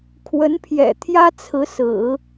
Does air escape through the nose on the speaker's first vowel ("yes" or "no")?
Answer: no